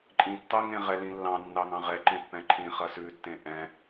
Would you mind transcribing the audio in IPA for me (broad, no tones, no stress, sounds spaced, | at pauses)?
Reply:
ǃʼ ĩ tː ɑ ŋ ẽ ʁ ɛ l ĩ lː ɑ̃ nː ɑ ŋ ɑ̃ ʁ ɛ ǃ ẽ pː ɛ̃ ǃʰ ĩ χ ɐ s ʉ tː ẽ ʔ ɛ̃